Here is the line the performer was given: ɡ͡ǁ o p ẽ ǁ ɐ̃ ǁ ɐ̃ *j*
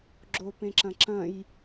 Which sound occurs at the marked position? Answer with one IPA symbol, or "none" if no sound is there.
j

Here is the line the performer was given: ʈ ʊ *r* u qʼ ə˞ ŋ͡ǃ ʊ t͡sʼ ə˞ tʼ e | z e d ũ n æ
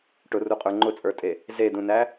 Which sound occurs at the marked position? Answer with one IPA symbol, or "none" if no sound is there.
r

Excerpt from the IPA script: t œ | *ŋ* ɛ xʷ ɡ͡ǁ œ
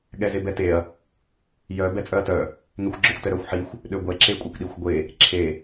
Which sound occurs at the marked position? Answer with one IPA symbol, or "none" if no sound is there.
ŋ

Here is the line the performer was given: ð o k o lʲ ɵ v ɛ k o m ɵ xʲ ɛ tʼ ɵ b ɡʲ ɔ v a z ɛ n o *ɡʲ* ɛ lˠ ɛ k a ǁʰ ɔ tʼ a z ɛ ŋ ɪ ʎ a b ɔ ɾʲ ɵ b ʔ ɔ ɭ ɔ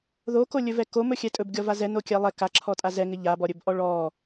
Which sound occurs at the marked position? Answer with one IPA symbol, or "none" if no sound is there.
kʲ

